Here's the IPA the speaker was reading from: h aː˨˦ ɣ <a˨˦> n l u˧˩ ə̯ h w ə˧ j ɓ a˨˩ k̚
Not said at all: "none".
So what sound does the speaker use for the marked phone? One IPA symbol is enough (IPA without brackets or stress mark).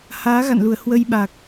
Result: a̰˧˨